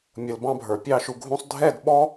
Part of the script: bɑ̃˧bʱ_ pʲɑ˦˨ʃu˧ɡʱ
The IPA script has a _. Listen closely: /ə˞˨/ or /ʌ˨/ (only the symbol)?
ə˞˨